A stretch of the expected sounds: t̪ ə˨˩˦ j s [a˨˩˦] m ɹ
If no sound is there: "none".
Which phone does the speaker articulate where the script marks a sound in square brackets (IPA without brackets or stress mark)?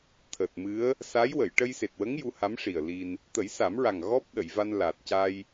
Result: a˨˩˦